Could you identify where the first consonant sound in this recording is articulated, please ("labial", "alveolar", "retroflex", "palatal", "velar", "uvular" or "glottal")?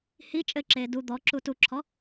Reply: glottal